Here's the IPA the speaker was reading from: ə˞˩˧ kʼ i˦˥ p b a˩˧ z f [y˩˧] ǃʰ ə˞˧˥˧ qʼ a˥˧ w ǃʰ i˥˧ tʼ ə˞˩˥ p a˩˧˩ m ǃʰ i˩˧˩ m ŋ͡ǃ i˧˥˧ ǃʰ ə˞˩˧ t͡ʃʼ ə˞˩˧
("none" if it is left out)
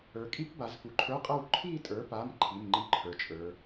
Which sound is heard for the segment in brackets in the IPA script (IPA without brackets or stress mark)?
u˩˧